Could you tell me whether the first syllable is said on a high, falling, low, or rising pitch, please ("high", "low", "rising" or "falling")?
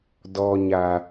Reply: low